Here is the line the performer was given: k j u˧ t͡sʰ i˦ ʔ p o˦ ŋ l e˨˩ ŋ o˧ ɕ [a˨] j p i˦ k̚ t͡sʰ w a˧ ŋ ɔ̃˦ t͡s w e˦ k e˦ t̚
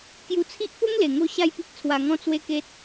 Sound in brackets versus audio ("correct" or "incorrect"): incorrect